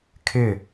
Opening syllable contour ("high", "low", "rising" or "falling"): falling